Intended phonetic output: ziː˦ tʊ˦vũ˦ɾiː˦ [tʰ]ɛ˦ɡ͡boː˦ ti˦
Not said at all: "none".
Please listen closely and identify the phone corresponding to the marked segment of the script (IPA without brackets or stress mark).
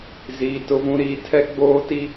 tʰ